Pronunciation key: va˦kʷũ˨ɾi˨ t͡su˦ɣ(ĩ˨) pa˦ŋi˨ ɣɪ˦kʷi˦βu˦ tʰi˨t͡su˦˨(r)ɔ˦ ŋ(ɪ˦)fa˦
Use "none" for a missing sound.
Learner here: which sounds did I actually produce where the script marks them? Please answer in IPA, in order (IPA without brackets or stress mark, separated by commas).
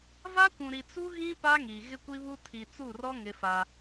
ĩ˦, r, ɪ˦